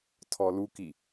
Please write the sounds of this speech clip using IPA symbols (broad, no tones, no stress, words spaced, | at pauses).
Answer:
tʰɔluki